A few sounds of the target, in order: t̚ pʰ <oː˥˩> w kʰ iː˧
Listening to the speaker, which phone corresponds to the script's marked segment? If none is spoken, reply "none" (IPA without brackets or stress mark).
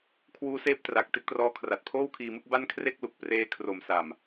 oː˥˩